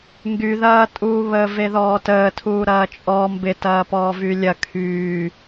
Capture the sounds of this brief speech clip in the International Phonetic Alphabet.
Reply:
ŋ ɡ y ð ɐː tʼ uː β əː v e ð ɔː t əː tʰ uː ɾ ɐː t͡ʃʼ ɔ m b ɪ t ɐː p ɔː v y lʲ ɐ kʰ yː

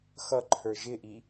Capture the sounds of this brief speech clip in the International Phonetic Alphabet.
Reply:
x ʌ ǃʰ ə˞ ʒ ɪ ʔ i

